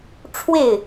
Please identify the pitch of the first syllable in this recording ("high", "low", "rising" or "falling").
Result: falling